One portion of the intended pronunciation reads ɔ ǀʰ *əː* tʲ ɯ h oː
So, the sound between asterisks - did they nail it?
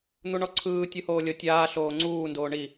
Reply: no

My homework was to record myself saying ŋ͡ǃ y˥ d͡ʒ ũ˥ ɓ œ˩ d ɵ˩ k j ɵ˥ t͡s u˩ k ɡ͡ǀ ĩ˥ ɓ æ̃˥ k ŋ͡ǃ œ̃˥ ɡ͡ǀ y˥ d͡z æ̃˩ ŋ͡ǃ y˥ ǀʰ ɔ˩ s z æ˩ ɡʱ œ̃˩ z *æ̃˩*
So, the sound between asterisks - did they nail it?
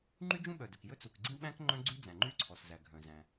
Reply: yes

